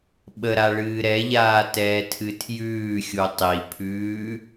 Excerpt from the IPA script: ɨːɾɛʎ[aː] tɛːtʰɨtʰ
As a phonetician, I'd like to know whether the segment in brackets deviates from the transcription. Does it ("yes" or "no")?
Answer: no